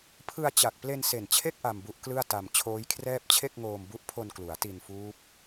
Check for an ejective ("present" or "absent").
absent